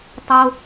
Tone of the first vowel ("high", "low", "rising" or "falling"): high